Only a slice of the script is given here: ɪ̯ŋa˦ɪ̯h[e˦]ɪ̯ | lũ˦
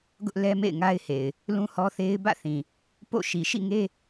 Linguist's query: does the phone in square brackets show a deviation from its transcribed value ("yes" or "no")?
yes